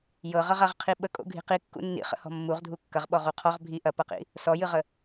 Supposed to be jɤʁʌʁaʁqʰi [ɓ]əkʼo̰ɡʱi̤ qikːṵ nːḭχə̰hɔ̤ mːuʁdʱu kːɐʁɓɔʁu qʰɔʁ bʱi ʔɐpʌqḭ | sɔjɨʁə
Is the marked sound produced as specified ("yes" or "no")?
yes